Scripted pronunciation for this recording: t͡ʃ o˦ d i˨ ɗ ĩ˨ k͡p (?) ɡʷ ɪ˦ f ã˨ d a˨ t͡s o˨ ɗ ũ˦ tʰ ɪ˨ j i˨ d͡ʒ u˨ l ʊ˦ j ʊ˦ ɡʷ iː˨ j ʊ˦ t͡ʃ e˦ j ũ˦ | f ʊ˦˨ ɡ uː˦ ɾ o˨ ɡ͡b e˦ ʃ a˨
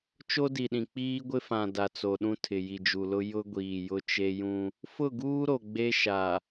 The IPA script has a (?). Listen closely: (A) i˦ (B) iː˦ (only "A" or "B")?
B